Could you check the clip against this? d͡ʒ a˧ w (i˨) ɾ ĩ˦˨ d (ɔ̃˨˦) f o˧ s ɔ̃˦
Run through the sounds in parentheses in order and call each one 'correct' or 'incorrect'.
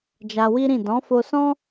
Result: incorrect: i˦, correct

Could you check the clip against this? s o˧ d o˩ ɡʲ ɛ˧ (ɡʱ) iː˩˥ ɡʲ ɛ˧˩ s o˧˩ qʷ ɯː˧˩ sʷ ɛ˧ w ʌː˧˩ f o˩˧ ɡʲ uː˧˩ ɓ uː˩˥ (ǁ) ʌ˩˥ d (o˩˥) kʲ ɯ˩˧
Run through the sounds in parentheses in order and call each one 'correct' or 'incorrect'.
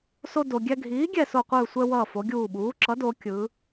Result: correct, correct, incorrect: o˩˧

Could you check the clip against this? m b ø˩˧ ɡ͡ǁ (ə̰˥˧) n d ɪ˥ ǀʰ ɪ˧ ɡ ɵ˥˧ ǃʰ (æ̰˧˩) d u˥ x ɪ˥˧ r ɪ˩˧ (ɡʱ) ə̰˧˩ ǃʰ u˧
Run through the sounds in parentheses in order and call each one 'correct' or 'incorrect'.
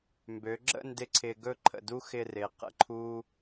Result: correct, incorrect: ə̰˧˩, incorrect: q

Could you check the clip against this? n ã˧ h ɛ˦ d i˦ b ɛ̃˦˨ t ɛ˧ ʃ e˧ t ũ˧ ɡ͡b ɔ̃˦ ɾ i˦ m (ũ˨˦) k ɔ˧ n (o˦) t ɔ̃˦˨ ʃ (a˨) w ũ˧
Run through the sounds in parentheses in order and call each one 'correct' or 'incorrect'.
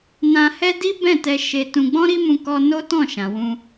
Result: incorrect: ũ˧, correct, incorrect: ã˨

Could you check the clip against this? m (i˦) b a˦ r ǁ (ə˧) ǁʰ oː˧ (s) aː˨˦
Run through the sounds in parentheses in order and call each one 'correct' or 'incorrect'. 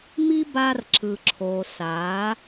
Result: correct, incorrect: ɯ˧, correct

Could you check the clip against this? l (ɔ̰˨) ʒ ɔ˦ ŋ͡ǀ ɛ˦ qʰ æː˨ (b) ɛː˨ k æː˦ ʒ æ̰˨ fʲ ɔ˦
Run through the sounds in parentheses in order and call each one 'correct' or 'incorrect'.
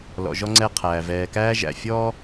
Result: correct, incorrect: v

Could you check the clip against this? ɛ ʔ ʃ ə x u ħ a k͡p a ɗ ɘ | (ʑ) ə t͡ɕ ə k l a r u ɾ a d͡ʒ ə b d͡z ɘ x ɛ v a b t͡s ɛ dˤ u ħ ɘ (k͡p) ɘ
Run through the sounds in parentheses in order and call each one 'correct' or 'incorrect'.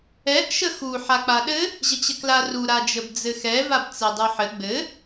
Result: correct, incorrect: ɡ͡b

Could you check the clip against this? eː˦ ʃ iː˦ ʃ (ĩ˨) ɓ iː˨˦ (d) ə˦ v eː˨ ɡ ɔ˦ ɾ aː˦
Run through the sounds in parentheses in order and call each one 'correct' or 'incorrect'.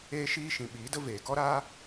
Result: correct, correct

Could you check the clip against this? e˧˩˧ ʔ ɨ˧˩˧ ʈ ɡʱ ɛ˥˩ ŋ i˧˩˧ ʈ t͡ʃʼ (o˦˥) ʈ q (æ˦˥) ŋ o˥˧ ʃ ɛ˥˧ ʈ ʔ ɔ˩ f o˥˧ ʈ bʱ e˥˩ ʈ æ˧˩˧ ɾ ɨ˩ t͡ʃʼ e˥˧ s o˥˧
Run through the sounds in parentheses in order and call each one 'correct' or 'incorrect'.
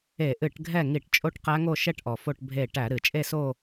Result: incorrect: o˥˧, correct

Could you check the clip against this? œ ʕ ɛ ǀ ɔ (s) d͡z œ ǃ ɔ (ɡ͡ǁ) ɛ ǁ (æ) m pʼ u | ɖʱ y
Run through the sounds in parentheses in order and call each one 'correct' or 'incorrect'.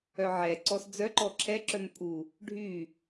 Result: correct, incorrect: ǁʰ, incorrect: œ

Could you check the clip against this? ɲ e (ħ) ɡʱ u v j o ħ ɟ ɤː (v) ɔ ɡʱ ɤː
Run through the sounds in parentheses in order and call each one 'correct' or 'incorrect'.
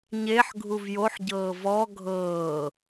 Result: correct, correct

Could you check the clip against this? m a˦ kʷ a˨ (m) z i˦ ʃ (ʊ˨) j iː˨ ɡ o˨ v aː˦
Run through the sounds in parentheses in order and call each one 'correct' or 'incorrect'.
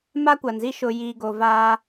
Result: incorrect: n, correct

